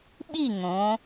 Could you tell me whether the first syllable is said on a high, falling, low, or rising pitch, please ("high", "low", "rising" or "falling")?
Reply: falling